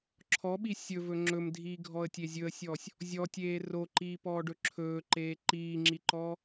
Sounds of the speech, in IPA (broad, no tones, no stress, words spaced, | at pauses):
ǁʰɔɓi sʲɵvɵ ŋ͡ǁɵmdʱiːɡʱɔə̯tʲe zʲɵə̯sʲɔːsʲ | zʲɔtʲeː roǃiːpɔːɖɵ ǁʰɵːǃeː ǃiːŋ͡ǁiǃɔː